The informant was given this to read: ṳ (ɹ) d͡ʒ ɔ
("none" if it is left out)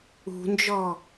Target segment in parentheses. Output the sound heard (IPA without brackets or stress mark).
n